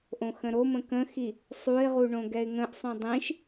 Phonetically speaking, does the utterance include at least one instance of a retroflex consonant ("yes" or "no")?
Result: yes